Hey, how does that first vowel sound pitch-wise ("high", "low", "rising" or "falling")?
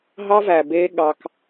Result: high